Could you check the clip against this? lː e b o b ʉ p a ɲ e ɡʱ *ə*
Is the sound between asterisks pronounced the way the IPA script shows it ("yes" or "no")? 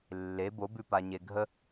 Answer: yes